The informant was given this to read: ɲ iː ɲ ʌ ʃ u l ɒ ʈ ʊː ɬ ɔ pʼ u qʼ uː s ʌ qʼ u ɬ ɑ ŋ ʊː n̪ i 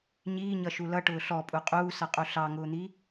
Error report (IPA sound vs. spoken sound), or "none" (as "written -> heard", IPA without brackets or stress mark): ɒ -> ʌ